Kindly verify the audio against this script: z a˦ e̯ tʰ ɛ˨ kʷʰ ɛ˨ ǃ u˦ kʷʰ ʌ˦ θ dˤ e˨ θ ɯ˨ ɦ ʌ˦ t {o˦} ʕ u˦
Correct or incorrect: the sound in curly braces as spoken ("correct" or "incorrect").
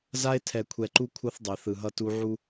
incorrect